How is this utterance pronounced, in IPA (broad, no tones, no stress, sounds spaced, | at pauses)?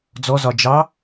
d͡z ɔ z ɒ d͡ʒ ɑ